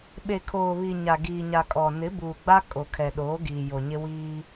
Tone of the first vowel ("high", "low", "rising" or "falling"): low